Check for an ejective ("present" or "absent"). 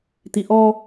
absent